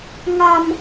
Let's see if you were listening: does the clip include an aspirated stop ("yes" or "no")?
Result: no